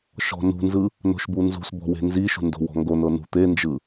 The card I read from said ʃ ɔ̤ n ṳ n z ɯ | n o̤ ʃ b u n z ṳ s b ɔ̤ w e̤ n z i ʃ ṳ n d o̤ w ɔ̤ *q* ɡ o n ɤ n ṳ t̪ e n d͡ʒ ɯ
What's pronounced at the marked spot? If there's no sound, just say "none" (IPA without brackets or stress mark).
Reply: ŋ